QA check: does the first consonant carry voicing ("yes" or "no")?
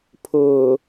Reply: no